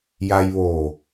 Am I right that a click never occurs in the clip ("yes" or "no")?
yes